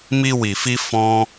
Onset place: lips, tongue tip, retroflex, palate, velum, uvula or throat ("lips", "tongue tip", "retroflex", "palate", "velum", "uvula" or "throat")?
lips